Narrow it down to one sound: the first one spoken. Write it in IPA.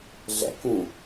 ɮ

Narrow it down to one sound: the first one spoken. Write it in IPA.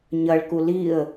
ɲ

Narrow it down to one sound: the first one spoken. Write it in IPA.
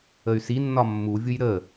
ə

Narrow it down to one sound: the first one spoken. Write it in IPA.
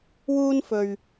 w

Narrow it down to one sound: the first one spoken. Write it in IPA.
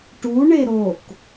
ʈ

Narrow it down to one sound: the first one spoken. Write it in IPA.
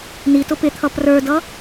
n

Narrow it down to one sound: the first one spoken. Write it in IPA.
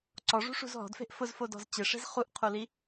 ǀ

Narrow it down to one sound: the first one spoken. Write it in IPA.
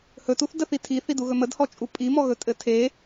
h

